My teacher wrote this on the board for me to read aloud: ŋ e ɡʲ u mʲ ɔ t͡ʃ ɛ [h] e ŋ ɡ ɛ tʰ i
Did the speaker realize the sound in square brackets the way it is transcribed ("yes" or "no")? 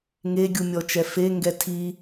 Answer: no